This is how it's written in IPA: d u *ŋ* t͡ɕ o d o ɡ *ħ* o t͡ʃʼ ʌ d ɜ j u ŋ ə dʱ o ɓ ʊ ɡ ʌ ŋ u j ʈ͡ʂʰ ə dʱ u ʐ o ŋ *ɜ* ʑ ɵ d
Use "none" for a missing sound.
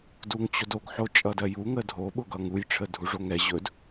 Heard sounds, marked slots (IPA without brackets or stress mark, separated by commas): ŋ, ħ, ɛ